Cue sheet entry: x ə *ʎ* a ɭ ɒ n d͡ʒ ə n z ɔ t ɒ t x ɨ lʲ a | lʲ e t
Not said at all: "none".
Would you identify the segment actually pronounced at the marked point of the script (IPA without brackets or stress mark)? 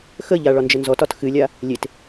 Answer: ʎ